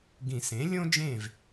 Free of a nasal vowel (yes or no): no